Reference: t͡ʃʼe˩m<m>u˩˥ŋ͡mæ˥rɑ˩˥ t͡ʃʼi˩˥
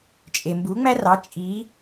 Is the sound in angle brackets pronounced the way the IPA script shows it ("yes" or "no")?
no